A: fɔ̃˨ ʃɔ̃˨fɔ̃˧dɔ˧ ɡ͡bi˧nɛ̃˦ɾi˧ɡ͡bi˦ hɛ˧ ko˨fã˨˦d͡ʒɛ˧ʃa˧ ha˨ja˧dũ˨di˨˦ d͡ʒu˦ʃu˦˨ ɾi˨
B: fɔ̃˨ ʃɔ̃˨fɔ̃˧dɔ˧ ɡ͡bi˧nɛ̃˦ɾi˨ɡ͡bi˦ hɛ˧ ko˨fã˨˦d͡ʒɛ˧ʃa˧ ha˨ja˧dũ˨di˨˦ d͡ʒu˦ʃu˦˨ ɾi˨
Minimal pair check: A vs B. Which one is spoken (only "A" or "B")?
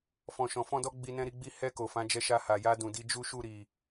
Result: A